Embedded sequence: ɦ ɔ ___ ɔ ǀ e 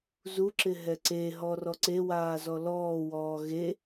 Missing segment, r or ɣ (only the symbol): r